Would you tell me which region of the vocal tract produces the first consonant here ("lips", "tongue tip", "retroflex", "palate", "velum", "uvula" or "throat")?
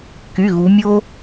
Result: velum